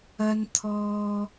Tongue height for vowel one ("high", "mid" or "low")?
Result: low